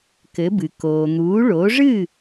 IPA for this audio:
kɘ˩˥bɨ˩ koː˩n̪uː˩˥ ɭoː˩˥ʐɨ˥˩

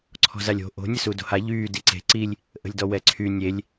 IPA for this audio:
ǀʰɔ̤zalʲo̤ ʔo̤ nʲəsudo̤ha ʎyː diǀe̤ ǀilʲ | ʔə̤lʲdɔwɛǀʰy nʲelʲ

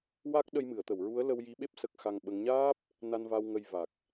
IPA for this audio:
wa˦˥k̚ ɗə˧jmɨ˨˩˨ə̯t̪ə˨˩˨wɹu˧˥ə̯ lə˧wji˧˥ɓe˦˥p̚ sə˦˥k̚xa˧ŋɓə˧˥ŋ ɲaː˦˥p̚ | na˧nva˧w ŋə˧jva˨˩k̚

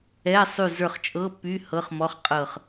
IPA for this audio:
ɛ˧˥˧sˤy˦˨ zə˞˦˨χt͡ʃʼɤ˧˥˧pːy˧˥˧ hɤ˧˥˧χmɔ˧˥˧χqʼɤ˦˨χ

